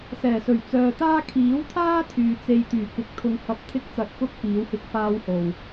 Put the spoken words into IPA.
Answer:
s ɛː˨˩ s ɵ˨˩ ɥ t͡s œː˨ t̪ aː˥ kʰ iː˨˥ w t̪ʰ aː˥ t̪ʰ yː˨ t͡s e˧ j t̪ yː˨˩ k ɪ˨ k̚ t̪ʰ ʊ˧ ŋ h ɐ˧ p̚ t̪ʰ ɪ˥ k̚ t͡s ɐ˨˥ t̚ k ʊ˥ k̚ p iː˨˥ w h ɪ˥ k̚ f aː˥ w h o˨˩ w

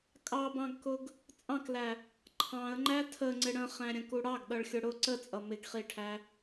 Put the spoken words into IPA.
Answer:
kʼ ɑ b ɑ̃ ɡ k ʊ ɡ | t͡sʼ ɑ̃ k l æ | ǃʰ ɑ̃ ə̯ ŋ͡ǃ æ tʰ ə ŋ͡ǀ ɪ ɽ ə̃ χ æ̃ ɾʲ ə̃ k u ɽ ɑ ɡ ɗ ʌ ɭ xʲ ʊ ɽ ʊ ǀ ə t͡sʼ ʌ m ɪ ɡ χ i ʈʰ æ

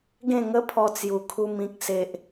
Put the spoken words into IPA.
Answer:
ɡ ẽ˥˧ ŋ ə˦ pʰ ɔ˧ t͡s j u˨˩ kʰ u˧ m ĩ˨ k̚ s e˨ ʔ

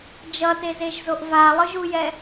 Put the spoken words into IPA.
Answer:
d͡ʒ ʌ t e z e ʒ z o ʔ v a lˠ ɯ ʒ u j ɛ

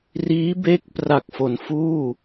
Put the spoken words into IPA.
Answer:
r iː˦˥ b e˦˥ k̚ p r a˨˩ k̚ f o˩˦ n f uː˥˩

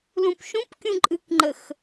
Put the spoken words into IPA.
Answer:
l ũ p ʃ ũ p kʲ ũ ǃʼ ɨ k ŋ͡ǃ ə x

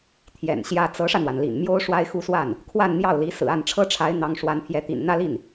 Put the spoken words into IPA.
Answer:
t̪ʰ j ɛ̰˨˩ n ɕ j ä˥ t͡s ɤ˧˥ ʂ ä˧ n̪ w a˩ n l ḭ˨˩ n m j o˥ ʊ̯ ʂ w a˥ ɪ̯ x u˥˧ s w a˥˩ n | kʰ w a˥˧ n n̪ j ɑ˥˩ ʊ̯ l i˧˥ s ɹ̩˨˩ a˥˩ n ʈ͡ʂʰ ɤ˥ ʈ͡ʂʰ a˧˥ ɪ̯ n̪ ɑ˧˥ ŋ ʂ w a˧˥ n pʰ j ɛ˧˥ t̪ ḭ˨˩ n n̪ ä˥˧ l i˥˩ n

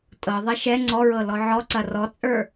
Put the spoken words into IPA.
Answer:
tʼ ɤ ðˤ ɐ ʃ ɛ ŋ͡ǀ ɔ ɹ ɤ l ɔ ʕ ɔ ǀ ɐ r ɔ t͡sʼ ə˞

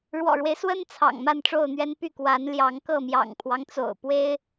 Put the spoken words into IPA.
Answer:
ɻ w ɔ̰˨˩ ɻ w e˦ ɪ̯ s w ə˦ n t͡sʰ ɑ̰˨˩ ŋ m a˥˨ n ʈ͡ʂ o˥˨ ʊ̯ n̪ ɥ ɛ˦ n p y˥˨ k w a˨˦ n l j ɑ˨˦ ŋ k ɤ˥˨ m j ɑ̰˨˩ ŋ pʰ w ɑ˦ ŋ t͡s o̰˨˩ ʊ̯ p w e˦ ɪ̯

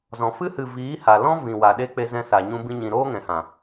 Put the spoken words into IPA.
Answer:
z ɔ̃˨ f ɨ˧ h ɨ˨ v iː˨˦ h a˨ l ɔ̃˦ v ĩ˨ w a˨ ɗ e˧ k͡p e˧ z ɛ̃˧ s a˨ ɲ ũ˧ b ĩ˧ ɲ ĩ˨ ɾ oː˦ ŋ ɛ̃˨ h ã˨

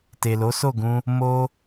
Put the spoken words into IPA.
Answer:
t e˨ l o˨˦ s o˦˨ ɡ ũ˧ | m o˧

